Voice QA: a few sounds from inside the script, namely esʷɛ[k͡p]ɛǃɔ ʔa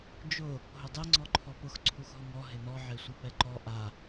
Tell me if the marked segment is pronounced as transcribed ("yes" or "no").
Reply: no